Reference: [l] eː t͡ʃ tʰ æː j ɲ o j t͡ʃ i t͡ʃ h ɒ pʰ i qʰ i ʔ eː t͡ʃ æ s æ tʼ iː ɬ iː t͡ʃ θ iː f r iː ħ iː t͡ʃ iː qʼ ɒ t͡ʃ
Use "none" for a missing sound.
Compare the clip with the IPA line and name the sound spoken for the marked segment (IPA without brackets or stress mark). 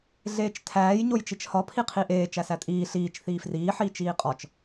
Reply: ɮ